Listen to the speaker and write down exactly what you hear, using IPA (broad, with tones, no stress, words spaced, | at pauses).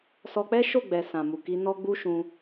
sɔ˧k͡pɛ˦ʃo˦˨ɡ͡bɛ˨ sã˨mu˨ki˧ nɔ˦ɡ͡bu˦ʃũ˧